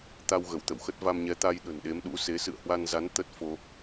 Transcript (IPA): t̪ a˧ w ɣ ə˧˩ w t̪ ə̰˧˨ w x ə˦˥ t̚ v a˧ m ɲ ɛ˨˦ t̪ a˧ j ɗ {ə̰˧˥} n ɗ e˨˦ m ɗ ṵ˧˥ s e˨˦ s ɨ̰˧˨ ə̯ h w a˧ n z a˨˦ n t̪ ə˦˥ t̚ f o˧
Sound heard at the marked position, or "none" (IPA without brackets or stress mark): ə̤˨˩